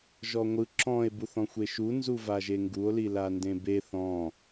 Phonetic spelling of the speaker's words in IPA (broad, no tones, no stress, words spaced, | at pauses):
ʒɔŋʷɯ ǁɔ̃e̯ buθɔ̃xʷeʃu nzuvaʒeŋɡuo̯ lilandẽbe θɔ̃